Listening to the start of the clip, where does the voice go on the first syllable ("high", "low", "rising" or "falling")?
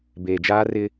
low